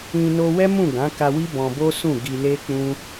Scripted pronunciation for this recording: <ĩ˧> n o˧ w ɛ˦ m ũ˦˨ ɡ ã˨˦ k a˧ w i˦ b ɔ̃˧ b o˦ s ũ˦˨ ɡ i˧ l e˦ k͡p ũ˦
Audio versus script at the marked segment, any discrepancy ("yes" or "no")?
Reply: no